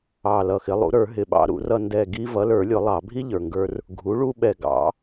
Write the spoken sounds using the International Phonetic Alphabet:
ɑ˨˩ l ʌ˨˩ x ɪ˩˥ lˠ ṵ˩˥ ɾ ə˞˨˩˦ ɦ ɪ˨˩ ɓ ɑ̰˧ ɾ ṵ˨˩˦ r ʌ˧ n d ɛ˨˩ ɡ i˧ v ʌ˩˥ l ə˞˨˩˦ lʲ ʊ˨˩˦ lˠ ɑ˨˩˦ bʱ i˥ ʎ ə˞˨˩ ŋ ɡ ə˞˧ r | ɡʱ u˩˥ ɭ u˧ ɓ ɛ˨˩ ɡ ɑ̰˨˩˦

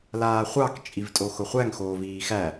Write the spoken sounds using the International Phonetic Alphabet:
l aː χʷ ɑ k t͡ʃʼ i v tʼ o x ʊ χʷ æ ŋ x oː v iː x æ

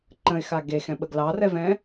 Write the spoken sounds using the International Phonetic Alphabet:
ǃ ə̃ ɪ̯ x a ɡ e x ɛ̃ ɓ ə ɡ l ɑ r ɛ v ɛ̃

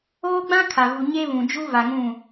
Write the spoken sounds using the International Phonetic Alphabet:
oː˦ ɡ͡b ã˦ kʰ a˨ v u˨ ɲ e˦ β ũ˨ d͡ʒ u˦ v a˨ ŋ ũ˦˨

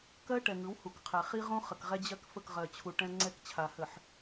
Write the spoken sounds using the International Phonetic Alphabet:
k ɜ˦ ʈ ɛ˨ ŋ ɯ˨˦ w h u˨ k qʰ ɛ˨ χ i˦ ʁ õ˦ χ ə˨ k ʁ ɛ˦ d͡ʑ ɜ˦ k f ə˦˨ k ʁ ɜ˨ t͡ɕʰ u˨ ʈ ɛ̃˦ ŋ͡ǀ ɛ˦ k t͡ɕʰ a˨ h ə˨ ħ

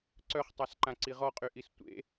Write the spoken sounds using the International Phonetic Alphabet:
ǀ œ χ tˤ a s ǃ ã ǀ i ʁ ɔ qʼ y ʔ i s tʷ ḛ

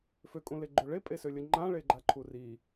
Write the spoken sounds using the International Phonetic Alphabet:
f ø kʼ ũ l e ɡ͡ǃ ø ɭ e pʼ e s ø lʲ ə ŋ͡ǃ ã ɭ e ɡ͡ǃ a ǃʰ u r i

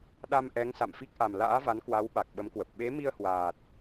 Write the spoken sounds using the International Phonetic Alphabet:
ɗ a˧ m ʔ ɛ˨˦ ŋ s a̰˧˨ m f i˦˥ k̚ ʔ a˨˩ m l a̰ː˧˥ v a˨˦ n k w a˨˦ w ɓ a˨˩ k̚ ɓ ə˨˦ m k w ə˨˩ p̚ ɓ e˨˦ m i˧ ə̯ h w aː˨˩ t̚

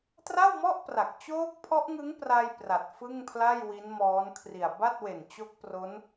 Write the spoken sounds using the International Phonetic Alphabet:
t r a˥˩ w m ɔ˥˩ ʔ p r a˨˩ k̚ t͡ɕ oː˦˥ k̚ pʰ ɔ˦˥ ʔ ŋ ɯ˦˥ ŋ p r a˧ j p r a˨˩ t̚ f ɯ˥˩ ŋ pʰ l a˥˩ j w i˦˥ n m ɔː˦˥ n kʰ r i˨˩ a̯ b a˥˩ t̚ w e˨˩ n t͡ɕ o˦˥ k̚ p r o˦˥ n

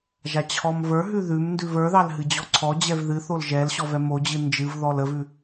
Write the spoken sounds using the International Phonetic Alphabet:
ʒ a t͡ɕʰ ɔ m v ə˞ ɦ ʉ ð ʉ m n d ʉ v ə˞ ð ɑ l ɦ ɨ d͡ʑ ɔ ǀʰ ɔ d͡ʑ ɛ v ð ɨ θ o l ʒ ɛ l ɕ ɔ v ɛ m o d͡ʑ ɨ n d͡ʒ ɨ v ð ɔ l ə v ʉ

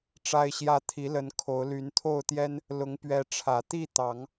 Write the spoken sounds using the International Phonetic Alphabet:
ʈ͡ʂ a˦ ɪ̯ ɕ j ä˦ t̪ʰ i˨˦ l ə˨˦ n kʰ o˨˦ ʊ̯ l y˨˦ n t̪ʰ o˥˨ ʊ̯ t̪ j ɛ˦ n | l ʊ˨˦ ŋ p ɥ ɛ˨˦ ʈ͡ʂʰ ä˨˩ t̪ i˥˨ t̪ ɑ˨˦ ŋ

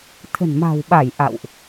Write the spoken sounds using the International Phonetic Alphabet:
t̪ʰ ə̤˨˩ n m a̤˨˩ w ɓ a˧˩ j ʔ a̰˧˨ w ʔ

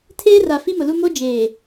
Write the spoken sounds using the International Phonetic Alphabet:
tʰ eː˦ r a˨ f i˦ m ʊ˨ l u˦ m o˦ d͡ʒ eː˨

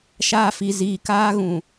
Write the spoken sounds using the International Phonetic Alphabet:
ʃ aː˦ f i˨ z iː˨ k aː˦ ɣ ũ˨

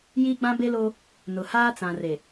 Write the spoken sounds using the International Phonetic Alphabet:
j iː˦ ɡ͡b ã˦ b e˦ l oː˦ | n ʊ˨ h aː˦ t͡s ã˨ r e˨

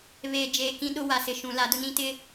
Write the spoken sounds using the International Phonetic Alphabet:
β eː˨ d͡ʒ eː˨ k ĩ˦ ɗ ʊ˦ w a˨ s ɪ˨ ʃ ũ˨ l a˨˦ d ʊ˦ n ĩ˦ t ɪ˦

